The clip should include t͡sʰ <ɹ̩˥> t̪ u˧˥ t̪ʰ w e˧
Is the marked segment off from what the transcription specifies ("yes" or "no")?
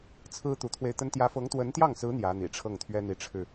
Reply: no